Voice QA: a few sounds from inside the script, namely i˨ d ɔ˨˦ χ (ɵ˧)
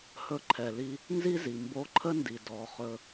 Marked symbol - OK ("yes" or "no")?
yes